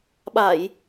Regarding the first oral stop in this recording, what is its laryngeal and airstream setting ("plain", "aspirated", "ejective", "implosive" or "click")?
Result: implosive